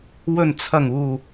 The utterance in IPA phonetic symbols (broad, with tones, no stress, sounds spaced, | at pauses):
w ɵ˨˩ n t͡sʰ ɐ˨˩ ŋ uː˨˩